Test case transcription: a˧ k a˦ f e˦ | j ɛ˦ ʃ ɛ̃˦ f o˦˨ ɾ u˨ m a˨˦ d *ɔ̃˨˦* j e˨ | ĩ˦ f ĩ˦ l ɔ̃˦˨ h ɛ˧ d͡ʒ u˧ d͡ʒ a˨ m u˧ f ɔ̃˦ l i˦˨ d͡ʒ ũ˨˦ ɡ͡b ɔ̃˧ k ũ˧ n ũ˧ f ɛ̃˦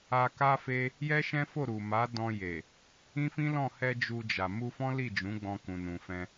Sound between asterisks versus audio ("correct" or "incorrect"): incorrect